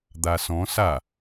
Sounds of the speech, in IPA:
d̪ a s ɔ̃ s a

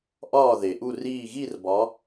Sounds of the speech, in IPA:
ʔ ɒː˧˩ ð e˩ ʔ u˧˩ r iː˧˩ ɣ i˥˨ r b ɒ˨˦

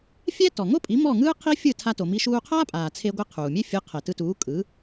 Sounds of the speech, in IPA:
fʲ ɛ˥ t ɔ˩ ŋ o˥ pʼ i˩˥ m ɔ˥˩ ŋ ɯː˥ qʰ i˥ fʲ ɯ˥˩ tʰ a˧ t o˩ m i˧ ʃ uː˧ qʰ aː˥ pʼ aː˩ t͡sʰ e˧ ɡʷ ɯ˧ qʰ uː˩ mʲ e˥ fʲ ɯ˩˥ qʰ ɛ˩ t ɯ˧ t uː˩˥ kʼ ɯ˩˥

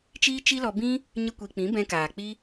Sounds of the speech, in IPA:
t͡ʃ iː˦ t͡ʃ i˦ l ɔ˧ b ĩ˦ | ɲ ə˦ kʷ i˧ k͡p ĩ˨˦ b ɛ̃˧ k aː˨ k͡p i˦

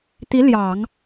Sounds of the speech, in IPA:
t̪ i˧˥ l j ɑ˨˩˦ ŋ

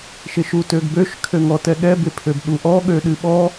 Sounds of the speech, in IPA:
ʃ ɪ ʃ u t ø ɡ b ø ʃ kʰ ø ŋ ɔ t ɛ ɠ ɛ b ɪ pʰ ø b ɗ u ʔ ɔ ɠ ø ɗ ɨ ɓ ɔ

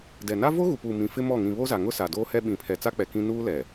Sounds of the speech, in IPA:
d ɛ˨ n a˦ v o˦ ɣ u˨ p uː˨ m ĩ˨ f ɪ˦ m ɔ˦˨ ŋ ĩ˨ β o˦ z a˨ ŋ ʊ˦ s a˨ d oː˦ h ɛ˦ ɓ ĩ˨ pʰ ɛ˨ t͡s a˦ k͡p ɛ˨ k ĩ˦ n uː˦ l ɛ˨

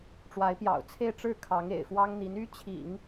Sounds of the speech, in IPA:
ʈ͡ʂ w a˧˥ ɪ̯ p j ɑ̰˨˩ ʊ̯ t͡sʰ e˥˧ ɪ̯ ʈ͡ʂ ɻ̩˥˩ kʰ ɑ˧˥ ŋ ḛ˨˩ ɪ̯ f w ɑ˥ ŋ n̪ i˧˥ n y˥ t͡ɕʰ ḭ˨˩˦ ŋ

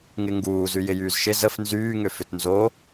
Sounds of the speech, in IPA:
ŋ ɪ ŋ ɡ uː z y j ɪ j yː z ʃ ɪ z ə f n z yː ŋ ʏ f ʏ t n z o

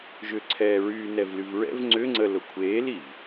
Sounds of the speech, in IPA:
ʒ ʏ ǀʰ ɛː ɹ yː n ɛ v l y v ɹ ɛ̰ v ŋ͡ǀ ʏ ŋ͡ǀ ə l ʊ kʷʰ eː l i v

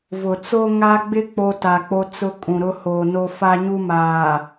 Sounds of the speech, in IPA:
v ʊ˨ t͡s o˦ ŋ a˦ ɡ͡b ɪ˦ k͡p o˦ t a˨ k͡p o˦ t͡s ʊ˦ kʼ ũ˨ ɾ ʊ˦ h oː˨ n o˦ f a˦ ɲ u˦ m aː˨

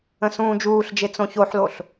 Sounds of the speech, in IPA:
ə̃ s ũː d͡ʒ uː ɬ d͡ʒ e t͡s õ ç o ħ l o ɬ

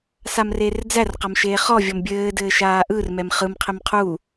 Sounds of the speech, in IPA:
s a m r eː r d͡z æ r q a m ʃ eː χ ɔ vʲ ɔ m bʲ ɘː d ɘː ʃ aː ʔ ɯ r m ɛ m χ ɯ m qʰ ɪ m qʰ u

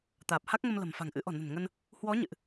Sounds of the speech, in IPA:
t̪ aː˨˩ p̚ h a˦˥ k̚ ŋ ə˧ m l ə̤˨˩ m f a̤˨˩ ŋ ʔ ɨ̰˧˥ ʔ ɔ̤˨˩ n ə̤˨˩ n ŋ ə˧ n | h w ɔ˨˦ ɲ ɨ̰˧˨ ʔ

